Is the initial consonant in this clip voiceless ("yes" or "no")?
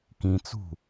yes